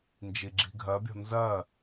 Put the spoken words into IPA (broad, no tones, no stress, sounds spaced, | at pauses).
n d͡ʒ i ɡ͡ǁ i̤ ɡʱ ɜ bʲ ɔ̤ n z ɜ